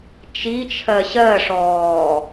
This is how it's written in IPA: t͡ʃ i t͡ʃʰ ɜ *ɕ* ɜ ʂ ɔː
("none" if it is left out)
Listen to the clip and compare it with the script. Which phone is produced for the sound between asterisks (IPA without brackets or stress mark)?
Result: ɕ